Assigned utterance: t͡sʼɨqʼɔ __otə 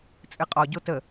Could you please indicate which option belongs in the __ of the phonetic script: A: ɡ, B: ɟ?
B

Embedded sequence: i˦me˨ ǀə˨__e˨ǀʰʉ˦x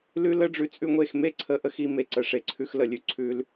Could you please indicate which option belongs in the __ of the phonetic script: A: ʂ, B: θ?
A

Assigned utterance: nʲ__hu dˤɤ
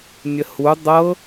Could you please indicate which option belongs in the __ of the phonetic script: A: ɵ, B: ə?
B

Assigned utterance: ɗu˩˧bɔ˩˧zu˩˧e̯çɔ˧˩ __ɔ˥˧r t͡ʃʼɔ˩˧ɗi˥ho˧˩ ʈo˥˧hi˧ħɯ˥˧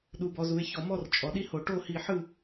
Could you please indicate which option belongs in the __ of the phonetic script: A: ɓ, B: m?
B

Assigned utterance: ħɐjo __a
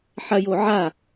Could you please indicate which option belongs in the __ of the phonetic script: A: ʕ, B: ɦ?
A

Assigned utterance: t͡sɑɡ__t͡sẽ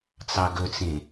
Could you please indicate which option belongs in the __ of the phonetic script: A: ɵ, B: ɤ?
A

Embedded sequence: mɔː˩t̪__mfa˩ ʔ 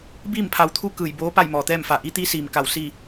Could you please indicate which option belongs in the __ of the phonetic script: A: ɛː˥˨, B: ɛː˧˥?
A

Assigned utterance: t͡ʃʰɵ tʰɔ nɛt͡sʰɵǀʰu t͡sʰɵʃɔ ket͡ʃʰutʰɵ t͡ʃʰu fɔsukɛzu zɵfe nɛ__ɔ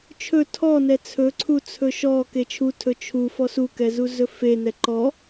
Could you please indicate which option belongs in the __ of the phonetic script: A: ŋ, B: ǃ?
B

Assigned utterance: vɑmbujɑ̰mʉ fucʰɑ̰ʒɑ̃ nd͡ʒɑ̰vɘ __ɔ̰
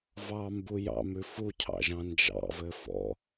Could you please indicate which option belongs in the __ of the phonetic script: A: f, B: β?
A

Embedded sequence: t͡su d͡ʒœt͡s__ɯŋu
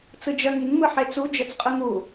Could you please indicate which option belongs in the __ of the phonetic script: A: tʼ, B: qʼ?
B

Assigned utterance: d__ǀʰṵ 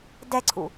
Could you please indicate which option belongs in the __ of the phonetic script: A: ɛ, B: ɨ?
A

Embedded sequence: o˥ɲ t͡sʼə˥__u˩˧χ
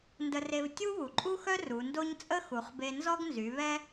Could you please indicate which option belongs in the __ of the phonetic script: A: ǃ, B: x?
B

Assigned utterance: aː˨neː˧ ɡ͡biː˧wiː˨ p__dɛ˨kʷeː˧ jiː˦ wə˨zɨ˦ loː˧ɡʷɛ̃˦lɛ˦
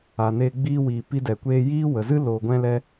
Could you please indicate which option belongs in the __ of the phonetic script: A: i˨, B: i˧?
B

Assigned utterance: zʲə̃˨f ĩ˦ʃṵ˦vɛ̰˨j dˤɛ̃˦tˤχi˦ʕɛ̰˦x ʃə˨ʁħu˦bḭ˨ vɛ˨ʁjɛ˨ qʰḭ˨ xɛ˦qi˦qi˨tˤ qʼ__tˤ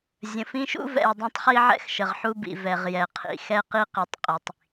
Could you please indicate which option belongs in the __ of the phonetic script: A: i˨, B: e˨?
A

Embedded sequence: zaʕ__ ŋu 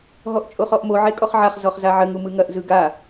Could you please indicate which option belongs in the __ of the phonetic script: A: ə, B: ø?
A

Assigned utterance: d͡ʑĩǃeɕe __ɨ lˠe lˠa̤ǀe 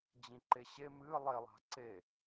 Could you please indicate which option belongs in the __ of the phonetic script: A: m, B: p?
A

